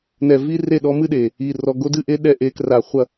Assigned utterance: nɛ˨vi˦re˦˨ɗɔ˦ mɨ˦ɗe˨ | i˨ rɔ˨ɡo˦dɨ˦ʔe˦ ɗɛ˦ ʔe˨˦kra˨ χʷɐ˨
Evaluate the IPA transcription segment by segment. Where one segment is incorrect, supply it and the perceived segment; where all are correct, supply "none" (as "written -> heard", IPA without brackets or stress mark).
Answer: none